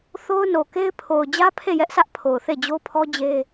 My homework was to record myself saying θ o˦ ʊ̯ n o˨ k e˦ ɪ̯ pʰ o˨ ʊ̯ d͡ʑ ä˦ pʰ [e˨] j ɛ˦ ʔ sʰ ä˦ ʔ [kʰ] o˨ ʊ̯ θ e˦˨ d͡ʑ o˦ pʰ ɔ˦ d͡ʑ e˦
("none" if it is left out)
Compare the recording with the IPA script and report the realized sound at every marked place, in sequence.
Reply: e˦˨, pʰ

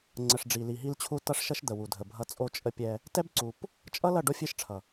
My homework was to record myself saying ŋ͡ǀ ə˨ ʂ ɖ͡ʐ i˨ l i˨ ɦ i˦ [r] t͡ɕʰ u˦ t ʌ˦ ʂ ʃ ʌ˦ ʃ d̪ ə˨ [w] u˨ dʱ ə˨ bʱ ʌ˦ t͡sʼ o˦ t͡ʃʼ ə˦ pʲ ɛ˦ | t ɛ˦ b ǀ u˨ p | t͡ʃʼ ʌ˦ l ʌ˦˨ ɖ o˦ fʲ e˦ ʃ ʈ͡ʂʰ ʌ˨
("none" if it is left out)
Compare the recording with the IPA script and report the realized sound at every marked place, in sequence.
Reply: l, w

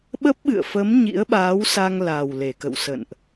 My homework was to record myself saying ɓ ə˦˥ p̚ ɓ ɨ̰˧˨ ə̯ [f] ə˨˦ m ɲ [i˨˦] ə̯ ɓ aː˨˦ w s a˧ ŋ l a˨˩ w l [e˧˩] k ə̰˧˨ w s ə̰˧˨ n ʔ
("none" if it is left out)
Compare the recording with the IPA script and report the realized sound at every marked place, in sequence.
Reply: f, ḭ˧˥, e˧˩

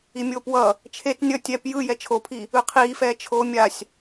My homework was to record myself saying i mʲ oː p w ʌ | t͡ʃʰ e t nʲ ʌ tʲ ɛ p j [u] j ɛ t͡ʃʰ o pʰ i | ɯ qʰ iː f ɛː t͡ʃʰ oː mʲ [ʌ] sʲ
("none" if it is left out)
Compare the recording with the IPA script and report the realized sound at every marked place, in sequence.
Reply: ɯ, a

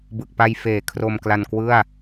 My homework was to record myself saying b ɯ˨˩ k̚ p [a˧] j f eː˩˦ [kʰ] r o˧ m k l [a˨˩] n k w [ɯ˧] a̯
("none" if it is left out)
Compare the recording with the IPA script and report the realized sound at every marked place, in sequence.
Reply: a˧, kʰ, a˧, ɯ˥˩

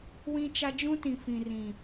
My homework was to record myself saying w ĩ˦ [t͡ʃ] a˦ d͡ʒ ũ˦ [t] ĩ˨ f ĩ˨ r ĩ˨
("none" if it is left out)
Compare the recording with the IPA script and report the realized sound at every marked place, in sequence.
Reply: t͡ʃ, t

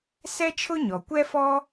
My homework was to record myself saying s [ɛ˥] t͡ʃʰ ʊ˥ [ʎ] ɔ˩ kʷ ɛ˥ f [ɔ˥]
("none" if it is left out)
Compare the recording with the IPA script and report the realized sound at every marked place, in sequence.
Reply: ɛ˥, ɲ, ɔ˥

